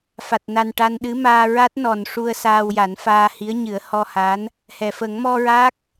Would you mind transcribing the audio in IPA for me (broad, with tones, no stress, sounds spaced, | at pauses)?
f a˨˩ t̚ n a˨˩ n ʈ a˧ n ɗ ɨ˧˥ m aː˧ ɹ a˦˥ t̚ n ɔ˨˩ n ʂ u˧ ə̯ s aː˧ w j a˨˩˦ n f aː˧ h i˧˥ ə̯ ɲ ɨ˨˩˦ ə̯ h ɔ˧ h a˧˥ n | h ɛ˨˩˨ f ə˨˩˦ ŋ m ɔ˧ ɹ a˦˥ k̚